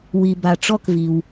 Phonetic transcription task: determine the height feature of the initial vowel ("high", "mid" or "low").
high